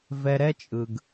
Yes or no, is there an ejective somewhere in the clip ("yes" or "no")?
yes